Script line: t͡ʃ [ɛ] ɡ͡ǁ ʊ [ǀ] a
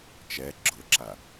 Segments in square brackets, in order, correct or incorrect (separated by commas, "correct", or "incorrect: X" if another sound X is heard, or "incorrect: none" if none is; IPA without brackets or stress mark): correct, incorrect: ǁ